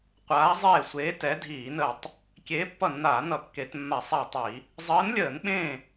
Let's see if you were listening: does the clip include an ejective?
no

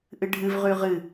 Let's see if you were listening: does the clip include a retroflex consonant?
yes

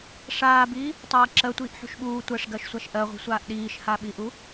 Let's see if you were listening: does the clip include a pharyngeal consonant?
yes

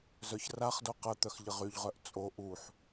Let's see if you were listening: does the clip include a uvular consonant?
yes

